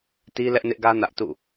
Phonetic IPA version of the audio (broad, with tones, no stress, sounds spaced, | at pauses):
t i˦ l ɛ˦ ʔ n ɪ˦ ʔ ɡ ä˦ n ä˦ ʔ t ṵ˦˨